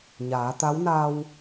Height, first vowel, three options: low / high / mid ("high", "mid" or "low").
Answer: low